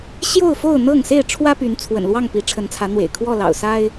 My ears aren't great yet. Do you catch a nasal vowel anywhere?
no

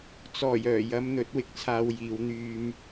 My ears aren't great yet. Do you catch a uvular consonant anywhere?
no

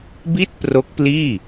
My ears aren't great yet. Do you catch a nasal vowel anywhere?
no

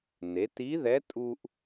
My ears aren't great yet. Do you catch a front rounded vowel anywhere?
no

